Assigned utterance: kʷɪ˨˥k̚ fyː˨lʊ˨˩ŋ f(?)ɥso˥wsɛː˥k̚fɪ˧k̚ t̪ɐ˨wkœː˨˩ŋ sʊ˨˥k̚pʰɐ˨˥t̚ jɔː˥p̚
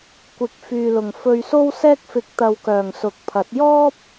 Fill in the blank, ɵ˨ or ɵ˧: ɵ˧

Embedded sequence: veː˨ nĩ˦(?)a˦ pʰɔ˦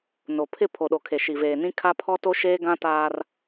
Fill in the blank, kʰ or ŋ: kʰ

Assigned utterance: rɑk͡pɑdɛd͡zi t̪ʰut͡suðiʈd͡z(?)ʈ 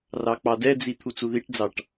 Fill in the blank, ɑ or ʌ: ɑ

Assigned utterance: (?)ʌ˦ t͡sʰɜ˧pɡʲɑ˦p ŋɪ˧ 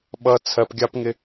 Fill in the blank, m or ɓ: ɓ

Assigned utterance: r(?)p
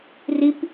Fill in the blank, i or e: i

